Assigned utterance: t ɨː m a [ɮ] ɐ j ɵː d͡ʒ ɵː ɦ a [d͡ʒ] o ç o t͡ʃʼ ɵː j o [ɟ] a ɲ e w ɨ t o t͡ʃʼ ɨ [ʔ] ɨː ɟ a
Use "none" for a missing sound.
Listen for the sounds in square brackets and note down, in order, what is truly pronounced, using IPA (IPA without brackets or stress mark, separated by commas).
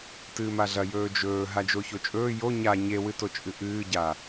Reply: ɮ, d͡ʒ, ɲ, ʔ